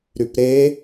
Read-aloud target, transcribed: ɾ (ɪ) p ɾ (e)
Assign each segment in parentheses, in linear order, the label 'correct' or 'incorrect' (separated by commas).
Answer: incorrect, correct